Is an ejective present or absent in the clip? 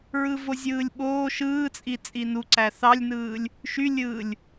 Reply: present